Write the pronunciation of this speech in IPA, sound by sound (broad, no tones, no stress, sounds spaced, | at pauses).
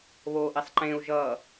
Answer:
β o ʔ i sˤ ǃ ẽ u̯ ʒ ʌ